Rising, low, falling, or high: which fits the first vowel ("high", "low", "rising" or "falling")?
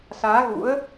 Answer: rising